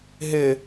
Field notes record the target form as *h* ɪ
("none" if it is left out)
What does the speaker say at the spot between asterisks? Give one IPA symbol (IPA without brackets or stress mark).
ɦ